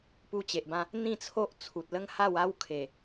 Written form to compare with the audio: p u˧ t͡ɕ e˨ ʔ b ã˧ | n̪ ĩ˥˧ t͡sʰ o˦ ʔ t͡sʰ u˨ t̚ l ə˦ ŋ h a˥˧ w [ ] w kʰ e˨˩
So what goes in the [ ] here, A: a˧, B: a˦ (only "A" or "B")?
B